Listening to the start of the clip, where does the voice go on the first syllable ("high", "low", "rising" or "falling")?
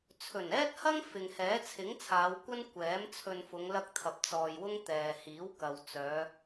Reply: low